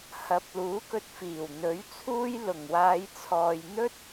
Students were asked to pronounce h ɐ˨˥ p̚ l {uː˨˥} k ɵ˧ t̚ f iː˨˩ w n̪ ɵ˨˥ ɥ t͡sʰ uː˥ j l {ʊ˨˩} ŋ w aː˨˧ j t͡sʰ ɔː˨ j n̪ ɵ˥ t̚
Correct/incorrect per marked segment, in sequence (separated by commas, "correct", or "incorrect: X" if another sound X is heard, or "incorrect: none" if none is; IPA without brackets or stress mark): correct, correct